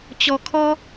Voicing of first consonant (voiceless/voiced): voiceless